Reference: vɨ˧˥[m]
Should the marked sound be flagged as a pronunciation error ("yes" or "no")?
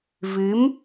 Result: no